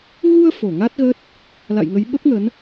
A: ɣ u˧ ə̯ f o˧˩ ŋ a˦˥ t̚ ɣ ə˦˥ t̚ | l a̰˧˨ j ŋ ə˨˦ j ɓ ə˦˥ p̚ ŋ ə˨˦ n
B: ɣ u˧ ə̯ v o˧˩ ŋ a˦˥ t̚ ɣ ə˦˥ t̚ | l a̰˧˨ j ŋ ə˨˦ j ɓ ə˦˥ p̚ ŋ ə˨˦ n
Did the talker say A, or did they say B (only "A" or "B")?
A